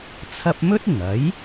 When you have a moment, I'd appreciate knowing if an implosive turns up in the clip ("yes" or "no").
no